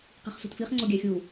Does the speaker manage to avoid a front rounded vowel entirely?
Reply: yes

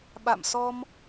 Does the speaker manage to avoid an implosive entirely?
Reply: no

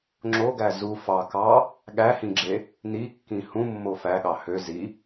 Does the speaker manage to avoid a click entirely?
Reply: no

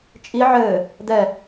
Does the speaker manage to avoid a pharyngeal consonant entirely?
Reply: no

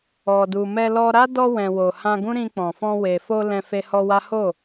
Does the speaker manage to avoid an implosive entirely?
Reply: yes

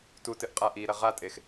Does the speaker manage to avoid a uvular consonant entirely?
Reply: no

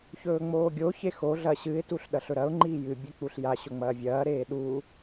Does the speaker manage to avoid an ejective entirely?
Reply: yes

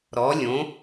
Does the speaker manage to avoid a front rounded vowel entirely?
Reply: yes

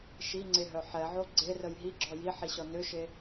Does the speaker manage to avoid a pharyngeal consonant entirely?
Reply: no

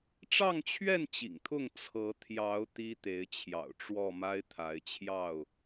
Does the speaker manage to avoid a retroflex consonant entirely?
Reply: no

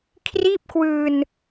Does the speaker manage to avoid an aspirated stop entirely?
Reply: no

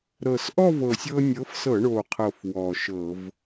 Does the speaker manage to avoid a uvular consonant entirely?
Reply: no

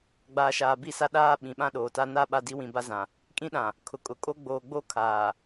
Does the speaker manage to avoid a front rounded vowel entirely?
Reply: yes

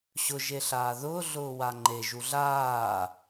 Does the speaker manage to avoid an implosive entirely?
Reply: yes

